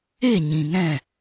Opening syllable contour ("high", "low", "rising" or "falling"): falling